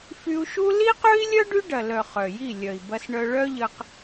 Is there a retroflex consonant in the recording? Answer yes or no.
yes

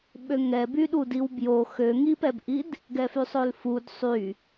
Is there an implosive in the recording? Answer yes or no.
yes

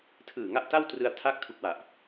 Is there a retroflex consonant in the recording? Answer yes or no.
no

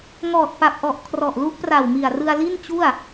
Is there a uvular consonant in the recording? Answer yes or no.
no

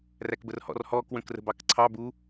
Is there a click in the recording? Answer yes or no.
yes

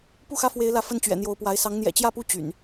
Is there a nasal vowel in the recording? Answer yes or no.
no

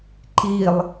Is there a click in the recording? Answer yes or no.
yes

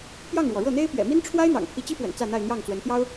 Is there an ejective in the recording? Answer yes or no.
no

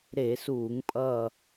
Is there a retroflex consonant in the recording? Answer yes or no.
no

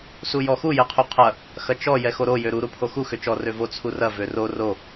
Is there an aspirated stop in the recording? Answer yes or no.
yes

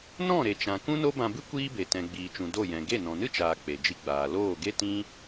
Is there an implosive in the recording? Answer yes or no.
no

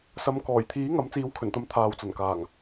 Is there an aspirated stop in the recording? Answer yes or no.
yes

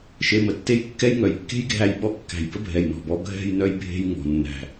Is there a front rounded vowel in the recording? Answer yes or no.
yes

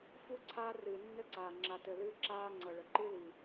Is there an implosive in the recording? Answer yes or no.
no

